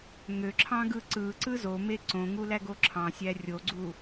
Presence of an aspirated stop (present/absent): present